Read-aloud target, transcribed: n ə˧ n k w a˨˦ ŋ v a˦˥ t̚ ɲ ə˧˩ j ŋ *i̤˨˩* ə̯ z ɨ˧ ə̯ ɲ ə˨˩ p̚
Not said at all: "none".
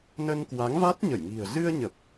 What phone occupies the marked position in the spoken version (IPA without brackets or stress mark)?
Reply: i̤˨˩